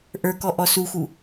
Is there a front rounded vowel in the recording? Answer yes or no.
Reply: no